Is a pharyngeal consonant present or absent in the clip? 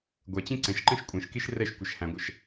absent